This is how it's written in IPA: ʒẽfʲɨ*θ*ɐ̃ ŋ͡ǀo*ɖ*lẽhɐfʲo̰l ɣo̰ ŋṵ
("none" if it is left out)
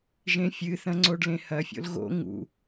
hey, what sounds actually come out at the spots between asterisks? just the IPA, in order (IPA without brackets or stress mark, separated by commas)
θ, ɖ